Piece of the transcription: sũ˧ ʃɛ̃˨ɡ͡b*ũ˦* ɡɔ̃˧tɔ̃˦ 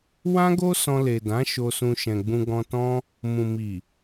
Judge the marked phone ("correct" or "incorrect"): incorrect